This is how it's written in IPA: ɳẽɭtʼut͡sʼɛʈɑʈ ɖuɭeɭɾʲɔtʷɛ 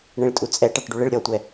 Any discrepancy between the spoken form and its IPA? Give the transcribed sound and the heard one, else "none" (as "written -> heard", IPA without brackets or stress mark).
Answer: none